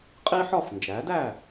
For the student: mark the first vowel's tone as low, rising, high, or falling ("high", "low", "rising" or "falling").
high